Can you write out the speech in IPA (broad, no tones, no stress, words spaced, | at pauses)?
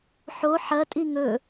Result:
ħo ħɐtʼi ŋɵ